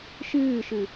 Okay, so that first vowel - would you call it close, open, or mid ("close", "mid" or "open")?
close